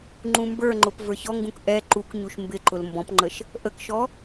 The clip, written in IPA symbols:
ŋ͡ǃũmbə˞ŋ͡ǃʊp və˞çɔŋɡũk ʔɛ ǃukɲuʃ mbɪǃʊl mbɔ̃pŋ͡ǃəʃ | ʔəkʃɔ

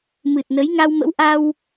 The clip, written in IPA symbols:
mɨ˨˩t̚nə˨˦jŋa˧w mə̰˧˥wʔa˧w

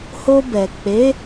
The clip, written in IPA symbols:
ho˧bɛ˨ k͡pe˨˦

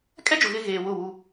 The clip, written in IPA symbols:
kʼɛ˦d͡ʒʊ˨ ɣɪ˦ ɣeː˨ wʊ˦˨wu˦

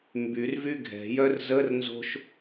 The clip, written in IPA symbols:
mbyr vyɡʱɛ̤jœr zər nzo̤ʃ

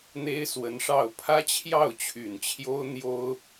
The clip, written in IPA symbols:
n̪e˥ɪ̯swə˧˥nʂɑ˥˩ʊ̯ pʰä˥ t͡ɕʰjɑ˥˩ʊ̯t͡ɕʰy˨˩nt͡ɕʰjo˥ʊ̯ n̪jo˥ʊ̯

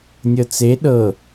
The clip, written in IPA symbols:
nʲɤt͡se ɗɤ

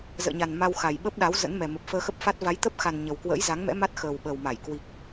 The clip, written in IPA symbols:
zə̰ː˧˨ɲa˨˩n ma˧wxa˨˩jɓə˦˥p̚ɗa˨˦w zə̰˧˥nmɛ˨˩ mə˨˩p̚fəː˧ xə˦˥p̚fa˦˥t̚ va˨˦jt̪ə˦˥p̚xa˨˩n ɲə˨˩wkwə̰ː˧˥jza˨˦ŋmɛ̰˧˥ ma˦˥t̚xəː˨˩w ɓə˨˩wma˧˩jkwi˨˩k̚

